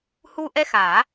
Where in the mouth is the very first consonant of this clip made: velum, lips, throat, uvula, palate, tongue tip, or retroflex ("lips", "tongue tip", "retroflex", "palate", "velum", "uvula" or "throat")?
throat